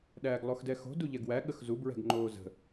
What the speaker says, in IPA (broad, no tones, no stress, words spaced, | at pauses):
ɗæːɡlˠoxdɛxo̤ duʎɛɡwæ ɠəxzu bɹɛ̤ɡŋ͡ǃoːzə̤